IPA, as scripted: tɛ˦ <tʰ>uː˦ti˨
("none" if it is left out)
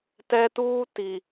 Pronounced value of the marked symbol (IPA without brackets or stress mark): t